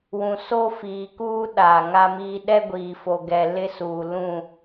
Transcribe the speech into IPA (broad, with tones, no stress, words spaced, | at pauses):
wũ˨so˦fiː˨kuː˦ ɗaː˨ŋa˦miː˦ ɗɛ˦ɡʷiː˨fo˨ɡɛ˨ lɪ˦suː˨ lũ˦˨